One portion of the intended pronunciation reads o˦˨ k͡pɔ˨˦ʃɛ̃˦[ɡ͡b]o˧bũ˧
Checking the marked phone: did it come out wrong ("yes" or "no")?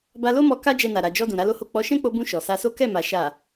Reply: yes